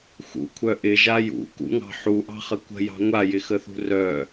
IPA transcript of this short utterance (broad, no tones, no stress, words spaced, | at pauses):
xṵkʷʰœ ʔɪʒa jṵkṵŋɑ̤ ħuʔɑ̤χə kʷə̤jɑ̤ ŋʷajɪxəθṳ rœ